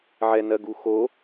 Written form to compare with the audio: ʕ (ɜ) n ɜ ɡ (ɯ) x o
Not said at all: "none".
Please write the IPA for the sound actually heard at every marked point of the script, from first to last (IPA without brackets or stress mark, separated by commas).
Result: ɛ, u